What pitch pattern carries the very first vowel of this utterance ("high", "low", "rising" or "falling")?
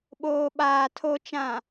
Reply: low